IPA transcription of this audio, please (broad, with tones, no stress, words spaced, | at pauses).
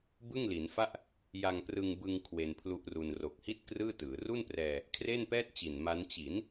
bɯ˥˩ŋli˩˦nfa˥˩ʔ | ja˧ŋprɯ˧ŋbɯ˧ŋ kʰwe˧npʰlu˦˥ʔru˧n ro˨˩k̚hi˥˩t̚ krɯː˥˩tɯː˩˦ ru˥˩nprɛː˧ | kʰre˥˩npɛː˥˩t̚t͡ɕi˨˩n ma˦˥n t͡ɕi˩˦n